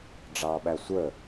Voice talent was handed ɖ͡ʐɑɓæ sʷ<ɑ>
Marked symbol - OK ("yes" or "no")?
no